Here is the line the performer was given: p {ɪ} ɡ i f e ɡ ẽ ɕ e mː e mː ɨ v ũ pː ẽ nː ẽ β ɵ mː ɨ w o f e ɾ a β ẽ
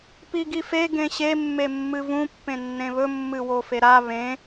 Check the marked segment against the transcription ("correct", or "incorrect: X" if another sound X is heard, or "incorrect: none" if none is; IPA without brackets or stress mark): incorrect: i